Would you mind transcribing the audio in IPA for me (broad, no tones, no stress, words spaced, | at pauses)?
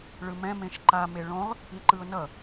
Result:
ɭɯmɛ̃ mẽʃǃa meɭõlˠ | iǃɯʊ̯nʌ